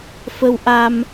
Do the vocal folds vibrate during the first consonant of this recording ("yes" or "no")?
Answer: no